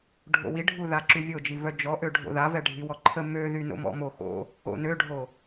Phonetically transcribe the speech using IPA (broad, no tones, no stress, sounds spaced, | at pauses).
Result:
ɖʱ o̰ w i ɖʱ u ð a ǁ y vʲ o d͡ʒ i v œ d͡ʒ ɔ ʔ ø ɖʱ o̰ ð a v ɛ ɖʱ i w ɔ ǃʰ ə m ø ð y n o̰ m ɔ̰ m o x o̰ | o̰ n ø ɖʱ o